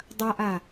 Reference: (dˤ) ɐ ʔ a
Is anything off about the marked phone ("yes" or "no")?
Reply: no